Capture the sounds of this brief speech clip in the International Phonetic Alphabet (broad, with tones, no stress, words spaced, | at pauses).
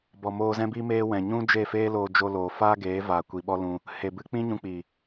bɔ˨moː˧zɛ̃˦biː˦ meː˦ wɛ̃˨ɲũ˦ d͡ʒe˦˨ feː˦loː˧ d͡ʒo˦ loː˨ faː˦ɡeː˨˦vaː˨ kʷi˨ɓɔ˦lũ˧ | he˨bɨ˧ k͡pĩ˦ɲũ˧k͡piː˨